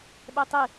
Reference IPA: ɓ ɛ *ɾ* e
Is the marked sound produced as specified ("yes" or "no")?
no